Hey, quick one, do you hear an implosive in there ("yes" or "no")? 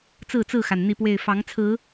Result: no